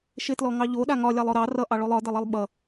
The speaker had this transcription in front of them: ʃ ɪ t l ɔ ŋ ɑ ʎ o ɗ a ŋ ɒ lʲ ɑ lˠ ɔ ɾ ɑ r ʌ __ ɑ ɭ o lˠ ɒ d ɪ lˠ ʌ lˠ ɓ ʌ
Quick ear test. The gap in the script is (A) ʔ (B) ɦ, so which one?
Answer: A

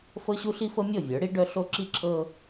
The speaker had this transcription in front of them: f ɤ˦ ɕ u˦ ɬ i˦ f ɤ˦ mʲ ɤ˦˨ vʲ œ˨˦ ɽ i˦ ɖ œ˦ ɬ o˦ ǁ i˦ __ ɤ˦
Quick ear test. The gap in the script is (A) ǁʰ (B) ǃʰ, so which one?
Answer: A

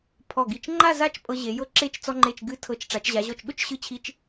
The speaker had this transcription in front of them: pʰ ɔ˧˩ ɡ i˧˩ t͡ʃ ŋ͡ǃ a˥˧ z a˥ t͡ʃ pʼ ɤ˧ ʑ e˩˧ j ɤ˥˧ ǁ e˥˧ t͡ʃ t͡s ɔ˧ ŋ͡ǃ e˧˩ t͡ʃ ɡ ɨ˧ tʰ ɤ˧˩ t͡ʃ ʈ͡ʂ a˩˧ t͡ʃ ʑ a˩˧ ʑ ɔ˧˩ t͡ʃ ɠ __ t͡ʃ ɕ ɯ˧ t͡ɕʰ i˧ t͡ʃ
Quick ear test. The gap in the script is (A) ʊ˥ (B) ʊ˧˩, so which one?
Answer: A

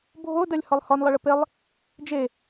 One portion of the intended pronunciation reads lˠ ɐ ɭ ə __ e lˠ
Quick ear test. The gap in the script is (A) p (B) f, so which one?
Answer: A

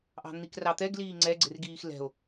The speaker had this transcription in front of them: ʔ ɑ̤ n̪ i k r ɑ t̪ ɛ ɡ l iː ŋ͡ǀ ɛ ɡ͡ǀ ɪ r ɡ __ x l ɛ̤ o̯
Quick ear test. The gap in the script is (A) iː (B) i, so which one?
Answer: A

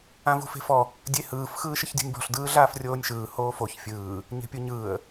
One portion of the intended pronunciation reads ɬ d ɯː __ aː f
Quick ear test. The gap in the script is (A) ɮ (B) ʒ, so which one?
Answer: A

